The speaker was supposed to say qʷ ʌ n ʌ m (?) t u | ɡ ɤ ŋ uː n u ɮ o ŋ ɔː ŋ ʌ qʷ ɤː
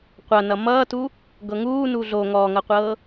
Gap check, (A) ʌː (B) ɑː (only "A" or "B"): A